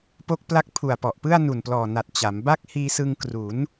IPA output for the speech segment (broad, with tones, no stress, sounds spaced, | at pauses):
p o˦˥ k̚ p l a˦˥ k̚ pʰ u˨˩ a̯ p ɔ˨˩ ʔ p ɯ˥˩ a̯ n u˨˩ n p l ɔː˨˩ n a˨˩ t̚ t͡ɕ a˩˦ m b a˥˩ k̚ h iː˧ s ɯ˧ ŋ k r u˩˦ n